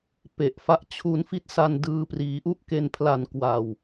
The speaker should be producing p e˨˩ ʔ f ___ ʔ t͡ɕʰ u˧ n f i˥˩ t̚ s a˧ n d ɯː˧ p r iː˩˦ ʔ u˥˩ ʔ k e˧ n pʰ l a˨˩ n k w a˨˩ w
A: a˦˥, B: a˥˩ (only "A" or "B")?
A